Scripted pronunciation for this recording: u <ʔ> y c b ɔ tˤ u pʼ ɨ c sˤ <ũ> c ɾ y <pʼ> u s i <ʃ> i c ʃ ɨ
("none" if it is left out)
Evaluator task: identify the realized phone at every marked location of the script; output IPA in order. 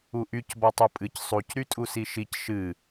ʔ, u, tʼ, ʃ

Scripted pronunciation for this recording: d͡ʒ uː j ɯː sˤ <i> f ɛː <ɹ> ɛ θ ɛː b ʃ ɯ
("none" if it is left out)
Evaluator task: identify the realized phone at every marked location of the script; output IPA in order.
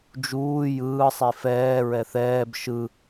i, ɹ

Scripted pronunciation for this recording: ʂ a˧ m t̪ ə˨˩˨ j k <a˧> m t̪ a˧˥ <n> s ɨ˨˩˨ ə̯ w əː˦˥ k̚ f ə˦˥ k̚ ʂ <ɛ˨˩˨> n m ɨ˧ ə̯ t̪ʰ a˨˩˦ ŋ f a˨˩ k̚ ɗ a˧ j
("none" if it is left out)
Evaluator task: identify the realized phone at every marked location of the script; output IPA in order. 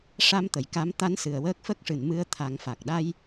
a˧˥, n, ɨ˨˩˨

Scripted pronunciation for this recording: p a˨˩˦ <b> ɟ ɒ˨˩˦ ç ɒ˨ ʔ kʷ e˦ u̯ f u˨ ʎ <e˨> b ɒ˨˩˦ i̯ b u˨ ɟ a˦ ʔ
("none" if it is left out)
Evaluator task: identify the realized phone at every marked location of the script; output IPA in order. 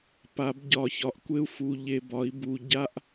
b, e˨

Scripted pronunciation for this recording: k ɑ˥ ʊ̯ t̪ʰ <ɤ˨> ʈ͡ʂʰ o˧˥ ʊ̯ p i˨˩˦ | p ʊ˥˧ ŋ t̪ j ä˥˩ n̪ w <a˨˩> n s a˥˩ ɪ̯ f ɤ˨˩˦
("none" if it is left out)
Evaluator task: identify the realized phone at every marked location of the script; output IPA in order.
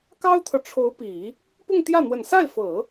ɤ˨, ə˨˩

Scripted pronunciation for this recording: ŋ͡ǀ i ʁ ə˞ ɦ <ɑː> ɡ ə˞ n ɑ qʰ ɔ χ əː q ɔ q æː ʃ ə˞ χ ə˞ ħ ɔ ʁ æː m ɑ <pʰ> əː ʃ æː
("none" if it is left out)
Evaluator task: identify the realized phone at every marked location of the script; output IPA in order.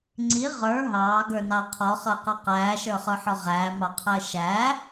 ɑː, qʰ

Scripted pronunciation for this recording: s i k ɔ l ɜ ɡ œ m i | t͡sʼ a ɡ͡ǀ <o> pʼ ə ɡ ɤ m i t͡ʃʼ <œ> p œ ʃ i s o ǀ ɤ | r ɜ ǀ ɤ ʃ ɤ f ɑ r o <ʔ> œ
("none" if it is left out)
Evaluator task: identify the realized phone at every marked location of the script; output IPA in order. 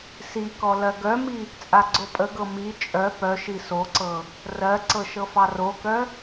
o, œ, k

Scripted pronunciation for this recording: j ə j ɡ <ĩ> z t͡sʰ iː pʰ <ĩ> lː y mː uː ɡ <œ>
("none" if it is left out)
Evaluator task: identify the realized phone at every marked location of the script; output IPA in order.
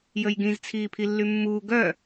ĩ, i, œ

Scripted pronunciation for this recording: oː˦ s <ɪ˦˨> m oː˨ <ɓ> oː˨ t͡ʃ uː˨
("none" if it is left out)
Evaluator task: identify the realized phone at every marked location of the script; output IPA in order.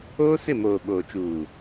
ɪ˦˨, ɓ

